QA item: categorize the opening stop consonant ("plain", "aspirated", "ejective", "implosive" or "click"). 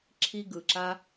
click